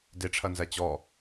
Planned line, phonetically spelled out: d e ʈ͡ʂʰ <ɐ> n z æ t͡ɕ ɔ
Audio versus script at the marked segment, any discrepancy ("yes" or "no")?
no